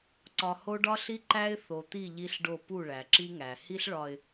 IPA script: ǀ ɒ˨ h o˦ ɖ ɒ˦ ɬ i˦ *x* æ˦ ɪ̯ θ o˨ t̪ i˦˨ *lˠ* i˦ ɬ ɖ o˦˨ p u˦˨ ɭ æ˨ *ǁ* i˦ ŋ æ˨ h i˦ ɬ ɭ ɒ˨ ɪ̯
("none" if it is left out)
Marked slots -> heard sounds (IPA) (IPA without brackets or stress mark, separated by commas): ǃ, ʎ, ǁ